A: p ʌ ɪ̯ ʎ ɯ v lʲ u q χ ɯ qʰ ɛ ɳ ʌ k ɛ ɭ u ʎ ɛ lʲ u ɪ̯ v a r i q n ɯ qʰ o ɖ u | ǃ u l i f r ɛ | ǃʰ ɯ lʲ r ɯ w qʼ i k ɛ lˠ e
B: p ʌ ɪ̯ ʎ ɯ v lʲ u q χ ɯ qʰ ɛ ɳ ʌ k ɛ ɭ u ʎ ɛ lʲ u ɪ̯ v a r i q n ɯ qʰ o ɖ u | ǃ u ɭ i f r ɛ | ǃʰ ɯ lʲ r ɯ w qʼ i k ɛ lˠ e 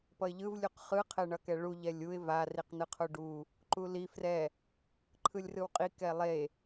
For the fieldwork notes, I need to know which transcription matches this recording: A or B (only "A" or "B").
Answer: A